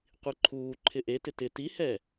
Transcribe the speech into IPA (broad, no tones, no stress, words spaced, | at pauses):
qʷiǃʰuːǃʰɪ ʔe tɪtɪ tihɛ